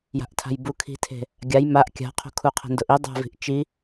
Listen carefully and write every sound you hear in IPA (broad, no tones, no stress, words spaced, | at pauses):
ja̤ʔtʰa̤jbu kʰi̤tʰe̤ | ɡʲaj maʔ kʲa̤qʰo̤kʰu qʰe̤ndʊʔi dˤa̤vi̤ʔ t͡ʃi